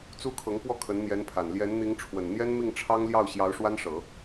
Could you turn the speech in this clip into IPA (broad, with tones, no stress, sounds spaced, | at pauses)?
t͡s u˥ kʰ ɤ˧˥ ŋ p w ɔ˥˩ kʰ ə˧˥ n n̪ j ɛ˧˥ n pʰ a˨˩ n l j ɛ˧˥ n n̪ i˧˥ ŋ ʈ͡ʂʰ w ə˨˩ n n̪ j ɛ˥ n m i˥˩ ŋ ʈ͡ʂʰ ɑ˥ ŋ l j ɑ˥˩ ʊ̯ ɕ j ɑ˧˥ ʊ̯ ʂ w a˥ n ʂ ɤ˨˩˦